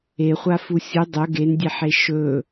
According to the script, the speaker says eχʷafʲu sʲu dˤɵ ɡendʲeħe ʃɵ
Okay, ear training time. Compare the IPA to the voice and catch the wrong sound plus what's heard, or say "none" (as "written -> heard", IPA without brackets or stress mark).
fʲ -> f